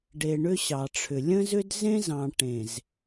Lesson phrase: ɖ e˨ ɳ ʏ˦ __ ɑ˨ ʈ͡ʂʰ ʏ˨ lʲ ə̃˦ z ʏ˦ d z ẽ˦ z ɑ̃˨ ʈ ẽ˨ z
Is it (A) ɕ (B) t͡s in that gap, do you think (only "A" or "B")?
A